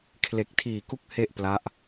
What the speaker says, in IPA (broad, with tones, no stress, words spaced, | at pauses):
kʰle˨˩k̚tʰiː˨˩ ku˦˥k̚ he˥˩ʔpla˦˥ʔ